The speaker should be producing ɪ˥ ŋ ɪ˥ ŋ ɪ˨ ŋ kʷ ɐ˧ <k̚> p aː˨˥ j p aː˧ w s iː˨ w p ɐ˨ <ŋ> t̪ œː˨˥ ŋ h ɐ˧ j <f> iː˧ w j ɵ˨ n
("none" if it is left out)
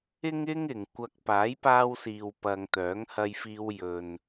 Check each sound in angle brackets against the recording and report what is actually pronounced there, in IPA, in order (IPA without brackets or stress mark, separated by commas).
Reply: k̚, ŋ, f